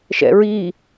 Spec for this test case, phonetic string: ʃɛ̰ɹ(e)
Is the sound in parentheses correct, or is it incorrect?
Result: incorrect